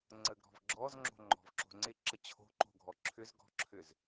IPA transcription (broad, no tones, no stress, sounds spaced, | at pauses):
ŋ͡ǀ ə ɡ ɾ ɔ̤ v ɡ͡ǁ ɔ z ŋ͡ǁ o̤ ŋ͡ǃ ɔ̤ v ǁ o̤ ŋ͡ǀ ɪ ǁ ə t͡ɕʰ o̤ ǃ o̤ ɡʱ ɔ ǁʰ ʏ z ɡ ɔ̤ ǁʰ ʏ z